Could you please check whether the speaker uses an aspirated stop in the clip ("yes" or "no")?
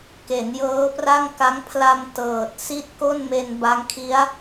yes